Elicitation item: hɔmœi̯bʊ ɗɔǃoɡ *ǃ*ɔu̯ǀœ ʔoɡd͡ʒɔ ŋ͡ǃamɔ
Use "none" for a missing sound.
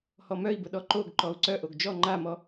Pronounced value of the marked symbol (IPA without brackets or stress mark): ǃ